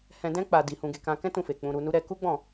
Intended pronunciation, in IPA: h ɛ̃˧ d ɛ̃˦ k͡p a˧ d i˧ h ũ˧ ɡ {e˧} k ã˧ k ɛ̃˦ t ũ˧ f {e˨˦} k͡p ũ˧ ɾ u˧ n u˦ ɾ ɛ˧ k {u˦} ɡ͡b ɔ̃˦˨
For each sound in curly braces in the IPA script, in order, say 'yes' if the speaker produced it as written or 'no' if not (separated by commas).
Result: yes, no, yes